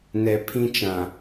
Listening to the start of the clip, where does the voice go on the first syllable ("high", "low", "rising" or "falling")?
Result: low